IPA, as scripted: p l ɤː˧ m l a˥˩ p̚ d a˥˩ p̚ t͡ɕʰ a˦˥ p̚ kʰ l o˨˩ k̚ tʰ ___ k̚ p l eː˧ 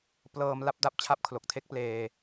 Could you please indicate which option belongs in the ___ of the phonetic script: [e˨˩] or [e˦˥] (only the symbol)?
e˦˥